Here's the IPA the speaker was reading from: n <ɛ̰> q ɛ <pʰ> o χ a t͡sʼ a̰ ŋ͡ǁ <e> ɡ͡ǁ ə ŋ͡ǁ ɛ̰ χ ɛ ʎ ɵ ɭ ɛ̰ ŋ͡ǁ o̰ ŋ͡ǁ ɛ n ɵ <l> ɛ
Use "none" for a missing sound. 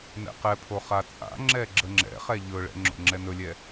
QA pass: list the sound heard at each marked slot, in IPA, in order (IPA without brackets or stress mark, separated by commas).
ɛ̰, pʰ, ɛ, lʲ